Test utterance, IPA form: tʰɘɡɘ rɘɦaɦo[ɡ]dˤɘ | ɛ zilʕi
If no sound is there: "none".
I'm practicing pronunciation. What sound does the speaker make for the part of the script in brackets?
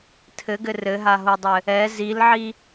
none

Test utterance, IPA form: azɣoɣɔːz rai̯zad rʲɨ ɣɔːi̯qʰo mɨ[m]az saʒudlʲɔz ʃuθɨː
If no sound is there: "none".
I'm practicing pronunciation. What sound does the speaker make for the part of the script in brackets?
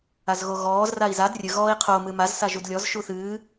m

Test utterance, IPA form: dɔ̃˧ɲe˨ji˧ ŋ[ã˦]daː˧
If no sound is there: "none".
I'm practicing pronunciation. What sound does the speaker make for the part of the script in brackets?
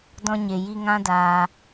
ã˦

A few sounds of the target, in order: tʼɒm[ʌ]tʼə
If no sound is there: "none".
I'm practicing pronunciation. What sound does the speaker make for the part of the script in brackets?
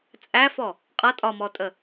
ɔ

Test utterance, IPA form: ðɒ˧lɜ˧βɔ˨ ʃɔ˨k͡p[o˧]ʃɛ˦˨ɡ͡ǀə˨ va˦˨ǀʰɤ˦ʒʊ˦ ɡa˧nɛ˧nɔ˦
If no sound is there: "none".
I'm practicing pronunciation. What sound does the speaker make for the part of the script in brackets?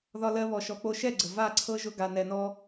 o˧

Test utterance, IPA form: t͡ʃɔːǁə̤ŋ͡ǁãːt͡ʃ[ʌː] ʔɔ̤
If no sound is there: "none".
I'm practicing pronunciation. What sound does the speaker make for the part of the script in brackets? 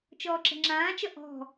ʌ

